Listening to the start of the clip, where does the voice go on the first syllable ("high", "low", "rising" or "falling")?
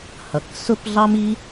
low